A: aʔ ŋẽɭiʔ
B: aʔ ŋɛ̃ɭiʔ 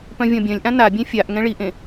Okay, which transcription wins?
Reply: B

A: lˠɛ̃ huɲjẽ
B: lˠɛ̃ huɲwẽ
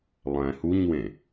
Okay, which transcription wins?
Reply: B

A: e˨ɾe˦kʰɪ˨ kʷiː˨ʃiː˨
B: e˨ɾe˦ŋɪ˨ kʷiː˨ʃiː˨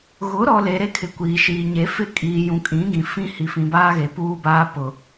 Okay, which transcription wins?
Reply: A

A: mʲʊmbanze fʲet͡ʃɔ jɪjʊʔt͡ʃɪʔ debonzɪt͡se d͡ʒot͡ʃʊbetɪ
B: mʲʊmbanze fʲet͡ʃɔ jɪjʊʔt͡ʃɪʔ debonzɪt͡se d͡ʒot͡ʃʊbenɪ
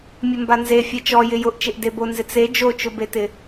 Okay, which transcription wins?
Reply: A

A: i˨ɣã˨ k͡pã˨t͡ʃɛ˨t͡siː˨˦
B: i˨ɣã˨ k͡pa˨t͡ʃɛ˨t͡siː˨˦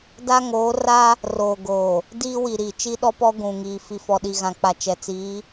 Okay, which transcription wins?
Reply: B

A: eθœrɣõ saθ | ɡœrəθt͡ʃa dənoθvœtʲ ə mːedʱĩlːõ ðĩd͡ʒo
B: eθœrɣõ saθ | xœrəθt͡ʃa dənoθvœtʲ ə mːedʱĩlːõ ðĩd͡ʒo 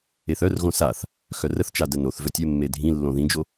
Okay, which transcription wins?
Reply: B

